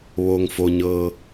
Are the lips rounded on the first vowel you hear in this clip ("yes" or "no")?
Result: yes